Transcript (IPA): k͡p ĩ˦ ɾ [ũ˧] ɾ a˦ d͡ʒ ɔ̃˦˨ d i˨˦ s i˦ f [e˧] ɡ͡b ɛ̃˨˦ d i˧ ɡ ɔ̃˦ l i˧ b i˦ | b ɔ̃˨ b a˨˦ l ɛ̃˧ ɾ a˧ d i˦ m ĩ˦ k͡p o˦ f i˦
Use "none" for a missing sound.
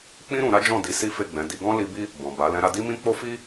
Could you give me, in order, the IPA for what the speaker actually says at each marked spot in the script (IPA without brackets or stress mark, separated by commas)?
ũ˧, e˦˨